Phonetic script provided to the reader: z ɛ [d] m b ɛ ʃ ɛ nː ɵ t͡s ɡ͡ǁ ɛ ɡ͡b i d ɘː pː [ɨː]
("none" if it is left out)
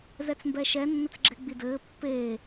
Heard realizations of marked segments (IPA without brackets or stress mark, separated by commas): t͡s, eː